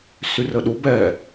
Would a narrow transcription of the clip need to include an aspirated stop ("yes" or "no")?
no